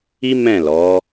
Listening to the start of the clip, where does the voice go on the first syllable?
high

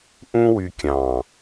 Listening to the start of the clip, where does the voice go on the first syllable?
high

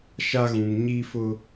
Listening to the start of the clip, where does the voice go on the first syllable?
high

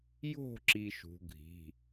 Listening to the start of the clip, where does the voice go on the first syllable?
falling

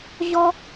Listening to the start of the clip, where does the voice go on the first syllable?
high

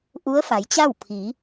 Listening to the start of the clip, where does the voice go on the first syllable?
rising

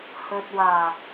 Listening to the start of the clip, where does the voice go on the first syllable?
low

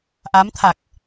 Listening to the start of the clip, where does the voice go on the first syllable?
rising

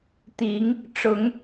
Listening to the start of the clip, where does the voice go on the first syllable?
rising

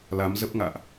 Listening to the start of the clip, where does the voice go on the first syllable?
rising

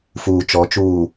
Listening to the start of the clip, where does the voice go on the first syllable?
low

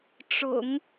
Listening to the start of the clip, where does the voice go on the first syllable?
low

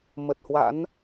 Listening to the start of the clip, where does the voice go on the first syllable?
low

